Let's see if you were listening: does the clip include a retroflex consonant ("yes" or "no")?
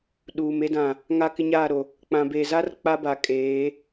no